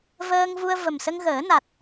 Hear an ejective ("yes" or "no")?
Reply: no